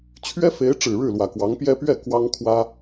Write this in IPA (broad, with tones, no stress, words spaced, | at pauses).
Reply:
t͡ɕʰɥɛ˥fe˧˥ɪ̯ʈ͡ʂɻ̩˨˩ ɻɻ̩˥˩lwä˨˩kwɑ˧˥ŋpjɛ˥ pɥɛ˥˩ kwɑ˥ŋkʰwä˥